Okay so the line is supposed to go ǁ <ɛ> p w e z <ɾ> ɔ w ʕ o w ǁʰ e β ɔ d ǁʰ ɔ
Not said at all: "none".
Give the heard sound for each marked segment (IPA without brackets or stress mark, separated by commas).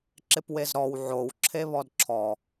ɪ, ɾ